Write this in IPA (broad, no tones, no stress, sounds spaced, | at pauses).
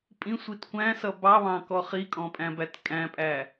pʼ ĩ sʷ i t kʷ æ̃ s ʌ b ɑ β ɑ̃ k ɔ χ i kʼ ɔ̃ pʼ æ̃ b æ t kʼ æ̃ pʼ æ